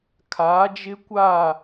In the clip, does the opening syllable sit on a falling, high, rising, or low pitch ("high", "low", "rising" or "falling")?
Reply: rising